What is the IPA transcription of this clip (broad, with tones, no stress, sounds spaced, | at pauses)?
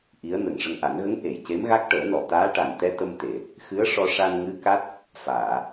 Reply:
ʔ i˧˥ ə̯ n ə˨˩ ŋ ʂ ə˧ ŋ ʔ a˨˩˦ n ɣ ə˧˥ ŋ ʔ e˨˩˨ j c e˧˥ m ɣ a˦˥ k̚ ʈ əː˨˩˦ n ɔ˨˩˨ t̪ aː˧˥ ʈ a˨˩ n t̪ ɛ˧ t̪ ə˧ m t̪ e˨˩˨ | x ɨ˧˥ ə̯ ʂ ɔ˧ ʂ a˧ n ŋ ɨ˧˥ k a˦˥ t̚ | f aː˨˩˨